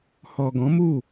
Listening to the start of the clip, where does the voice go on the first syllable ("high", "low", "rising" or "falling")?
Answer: low